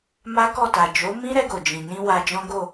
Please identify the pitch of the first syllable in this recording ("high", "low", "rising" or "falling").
high